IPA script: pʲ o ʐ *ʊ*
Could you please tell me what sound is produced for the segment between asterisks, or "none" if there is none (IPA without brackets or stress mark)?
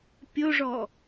ɔ